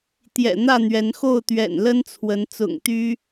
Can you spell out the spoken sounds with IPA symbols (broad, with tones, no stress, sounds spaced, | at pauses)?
t̪ j ɛ̰˨˩ n̪ ä˥˨ n̪ ɥ ɛ˨˦ n x o˥˨ ʊ̯ t̪ ɥ ɛ̰˨˩ n l ə˦ n t͡sʰ w ə˨˦ n t͡s ʊ̰˨˩ ŋ t̪ y˦